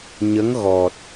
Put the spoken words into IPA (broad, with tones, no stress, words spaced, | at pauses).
ɲə˧˥ŋɣɔ˨˩t̚